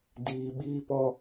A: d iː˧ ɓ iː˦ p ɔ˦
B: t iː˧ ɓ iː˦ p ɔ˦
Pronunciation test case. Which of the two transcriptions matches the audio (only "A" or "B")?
A